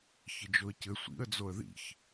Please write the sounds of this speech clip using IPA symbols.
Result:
çɘd͡ʒoə̯cɘ sʷḭə̯ d͡zoə̯ðḭç

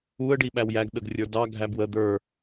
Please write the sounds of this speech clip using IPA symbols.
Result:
uə̯ɖiɓæw jæɡɗəɡrʲə˞ dɑ ɡʱæbwə d̪ə˞

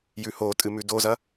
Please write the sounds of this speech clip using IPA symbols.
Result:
jʉhotʼɨ mʉdozɐ

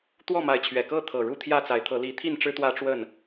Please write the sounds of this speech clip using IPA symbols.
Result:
t̪wɔ˥˨ma˨˦ɪ̯t͡ɕʰɥɛ˨˩ kɤ˥˨t̪ʰɤ˨˩ ɻu˥˨t̪ʰjä˥˨t͡sa˨˦ɪ̯t̪ʰɤ˨˦ li˨˦t̪ʰi˥˨nʈ͡ʂɻ̩˦ t̪wä˦ʈ͡ʂwə˥˨n

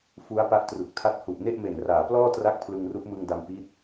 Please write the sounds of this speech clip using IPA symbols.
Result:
fu˦˥a̯pa˦˥ʔtru˨˩k̚tʰa˦˥t̚ hu˨˩ʔne˥˩ʔme˨˩nraː˩˦ plɔː˥˩tra˦˥k̚ pʰlɯ˧ŋru˦˥ʔmɯ˧ŋda˧m pi˦˥t̚

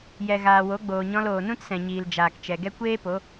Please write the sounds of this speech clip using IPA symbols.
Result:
jɛ˨ ɣaː˨wo˨˦ɡ͡boː˨ɲɔ̃˧l oː˨nũ˦tsɛ̃˨ɲiː˨l d͡ʒaː˨kt͡ʃɛ˨ɡɛ˦ kʷeː˦po˨˦

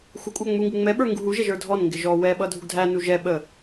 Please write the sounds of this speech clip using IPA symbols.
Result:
xʷəkʷʼæ ŋ͡muŋɡu ŋ͡mɛɓə˞ ŋɡuɦuʒɛʒ ə˞dʱɔnŋɡɪ ʒɔ wɛ ɓʌdʱuɡdʱænu ʒɛ ɓə

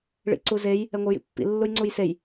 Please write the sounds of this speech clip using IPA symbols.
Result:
ɭḭǀuzej | ɛŋʷɯjḭpːḭ lːujŋ͡ǀujsej

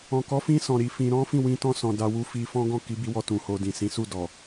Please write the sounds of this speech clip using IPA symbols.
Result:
ɔ̃˨kɔ˨˦fĩ˧sɔ̃˨ ɾi˨˦fĩ˧ ɾɔ̃˦fĩ˦˨ wĩ˧tɔ̃˧sɔ̃˨ da˧ wu˧fi˧fɔ̃˦ ɡɔ̃˦˨ki˨˦bi˧wɔ˧ tũ˨ho˧dĩ˨ sĩ˨˦su˦˨dɔ˨

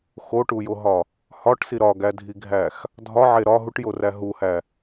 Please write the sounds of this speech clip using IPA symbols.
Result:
xoʈujoɦɒ | hɒʈsi ɾɒɡædʱiɡʱæx | dʱɒʕe ɾɒ ɦuʈjoræ ɦuhæ

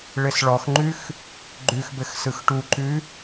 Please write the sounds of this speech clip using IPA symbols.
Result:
ɭɘsɭɔxŋ͡ǃʉx | ɡ͡ǃʉxbɘx sɯxʈuǃʉ

